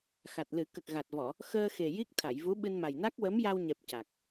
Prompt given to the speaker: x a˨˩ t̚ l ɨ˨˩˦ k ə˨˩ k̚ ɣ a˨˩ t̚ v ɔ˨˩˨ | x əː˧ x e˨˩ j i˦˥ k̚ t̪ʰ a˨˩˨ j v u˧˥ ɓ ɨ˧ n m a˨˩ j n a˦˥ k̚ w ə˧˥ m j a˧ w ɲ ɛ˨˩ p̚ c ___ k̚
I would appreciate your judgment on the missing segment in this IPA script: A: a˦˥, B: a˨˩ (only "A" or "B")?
B